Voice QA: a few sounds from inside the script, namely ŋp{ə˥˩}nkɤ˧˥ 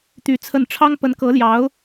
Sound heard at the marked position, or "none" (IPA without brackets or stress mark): ə˧˥